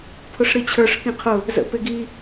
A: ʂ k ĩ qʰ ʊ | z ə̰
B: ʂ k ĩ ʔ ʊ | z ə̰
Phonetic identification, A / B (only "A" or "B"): A